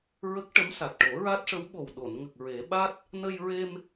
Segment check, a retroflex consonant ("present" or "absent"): present